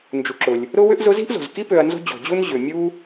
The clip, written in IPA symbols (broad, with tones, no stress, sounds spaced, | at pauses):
n d͡ʒ u˨ ǁ ʊ˩ lʲ | ɾ ʊ˥ w ʏ˥ ʔ z ʊ˦ z i̤˥ ʔ z o̤˩ z k i˥ p ø˨ ɐ̯ n z o̤˦ d͡ʑ o̤˩ d͡ʑ u˥ n ʑ ʏ˩ mʲ u˥